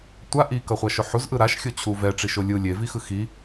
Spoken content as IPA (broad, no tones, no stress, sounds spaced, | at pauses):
tʷ a ʔ i k ʌ χʷ a ʃ o ħ u z ʔ ɯ ɾ a ʃ xʲ o t͡ɕʰ u v ɛ ʈ͡ʂ i ʃ o lʲ ɯ lʲ e v i x ɯ x i